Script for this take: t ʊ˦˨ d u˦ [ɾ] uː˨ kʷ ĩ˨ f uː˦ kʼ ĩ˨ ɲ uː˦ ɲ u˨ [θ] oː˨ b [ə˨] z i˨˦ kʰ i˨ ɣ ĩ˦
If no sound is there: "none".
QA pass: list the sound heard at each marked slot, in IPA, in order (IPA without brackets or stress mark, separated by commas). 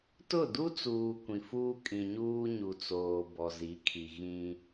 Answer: t͡s, t͡s, ɔ˨